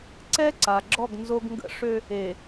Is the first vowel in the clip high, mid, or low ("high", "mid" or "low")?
mid